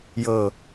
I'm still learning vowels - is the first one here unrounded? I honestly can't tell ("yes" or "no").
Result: yes